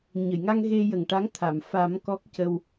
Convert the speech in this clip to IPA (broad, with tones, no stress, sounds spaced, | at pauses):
ɲ ə˨˩˨ j ŋ a˧ ŋ ɣ e˧ j ə˨˩ ŋ ʈ a˧˥ ŋ t̪ʰ a˨˩˨ m f a˨˩˦ m k ɔ˦˥ k̚ c ə˧ w